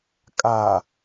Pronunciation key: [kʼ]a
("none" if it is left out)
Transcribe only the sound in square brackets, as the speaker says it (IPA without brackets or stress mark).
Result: kʼ